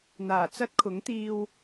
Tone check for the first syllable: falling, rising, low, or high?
low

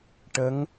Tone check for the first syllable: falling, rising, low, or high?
rising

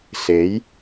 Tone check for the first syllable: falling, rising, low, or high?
rising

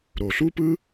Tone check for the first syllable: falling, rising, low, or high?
low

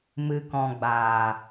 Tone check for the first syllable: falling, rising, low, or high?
low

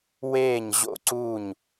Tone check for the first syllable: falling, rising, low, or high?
falling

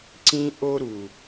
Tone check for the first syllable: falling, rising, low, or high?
high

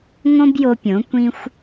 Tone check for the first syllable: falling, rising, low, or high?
high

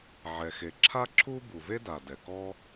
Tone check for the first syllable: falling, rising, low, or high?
low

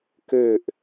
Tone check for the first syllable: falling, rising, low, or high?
falling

